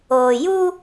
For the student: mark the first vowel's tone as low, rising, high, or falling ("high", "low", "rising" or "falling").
low